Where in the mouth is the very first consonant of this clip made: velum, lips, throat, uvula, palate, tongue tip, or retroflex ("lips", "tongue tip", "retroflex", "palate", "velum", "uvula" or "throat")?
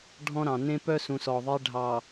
retroflex